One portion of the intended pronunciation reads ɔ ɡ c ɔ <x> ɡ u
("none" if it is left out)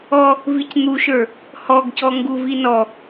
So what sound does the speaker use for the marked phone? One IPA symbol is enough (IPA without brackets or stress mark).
ŋ